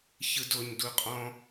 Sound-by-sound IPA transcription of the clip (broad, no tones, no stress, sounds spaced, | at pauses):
ç ɯ d o ɲ d u qʼ ɔ̃